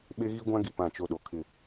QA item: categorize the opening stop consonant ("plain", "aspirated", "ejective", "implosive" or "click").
implosive